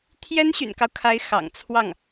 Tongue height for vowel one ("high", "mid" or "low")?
mid